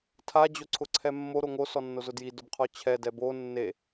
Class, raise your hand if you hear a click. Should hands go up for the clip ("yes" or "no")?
yes